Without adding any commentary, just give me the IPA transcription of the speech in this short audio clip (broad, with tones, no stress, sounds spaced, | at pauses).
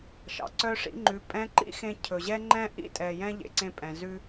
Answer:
ʃ ɑ̰˩ ǀ œ˧ ʂ ḭ˧ ŋ͡ǃ ʉ˩˧ pʼ ɛ̃˧˥ ǃ ḭ˥ x ẽ˧ cʰ ɵ˩ ʑ ɛ˥ ŋ͡ǃ ɛ̃˥ ʔ ḭ˥ tʼ ɛ˩ j ɛ̃˧ ʎ ḛ˩˧ ǀ ẽ˧ pʼ ɛ̃˩ z ʉ˧